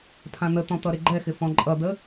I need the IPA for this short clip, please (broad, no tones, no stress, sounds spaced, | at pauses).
pʰ ã n̪ ə t̪ ɔ̃ t̪ ʌ ɾ ɪ ɡ͡ǃ ɛ x ɪ f ɔ̃ ǃʼ ʌ d̪ ə